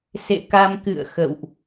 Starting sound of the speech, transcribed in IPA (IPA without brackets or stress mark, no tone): s